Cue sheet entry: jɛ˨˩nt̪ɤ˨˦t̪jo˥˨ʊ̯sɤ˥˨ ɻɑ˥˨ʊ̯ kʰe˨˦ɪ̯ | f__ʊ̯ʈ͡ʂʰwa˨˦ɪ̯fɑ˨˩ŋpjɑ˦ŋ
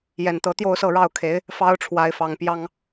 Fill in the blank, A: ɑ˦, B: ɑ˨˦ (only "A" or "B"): A